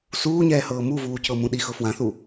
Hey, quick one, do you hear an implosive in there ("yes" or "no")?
yes